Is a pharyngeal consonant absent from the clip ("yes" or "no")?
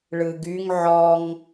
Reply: no